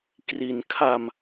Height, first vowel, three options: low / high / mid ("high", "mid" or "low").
high